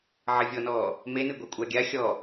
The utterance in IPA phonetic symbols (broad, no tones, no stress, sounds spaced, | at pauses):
ʕ ɐ vʲ ɔ n ɔː | m e n ɨ ɡʷ a kʷʼ a ɡʲ a xʲ ɔ